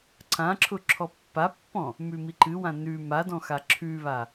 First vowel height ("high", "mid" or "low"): low